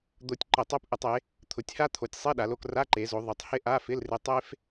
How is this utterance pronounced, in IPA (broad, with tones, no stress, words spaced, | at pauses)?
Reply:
d̪o˧tʲ ǃɪ˧˩˧tˤo˧˥˧pʔɪ˧˩˧tˤe˩˧ | t̪ʰʊ˩˧tʲha˥t̪ʰo˩˧tʲsˤi˧˥˧ ɗa˩˧lo˧k ra˧˥˧ǃe˩˧zo˩˧ ðˤɪ˩˧tˤ hɪ˥ ʔa˧˥˧fɪ˧˥˧lrɪ˧ tˤe˥f